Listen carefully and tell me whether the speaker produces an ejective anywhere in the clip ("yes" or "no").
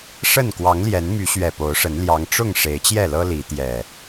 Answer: no